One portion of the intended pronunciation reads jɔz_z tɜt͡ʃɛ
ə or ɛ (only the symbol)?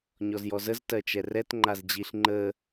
ə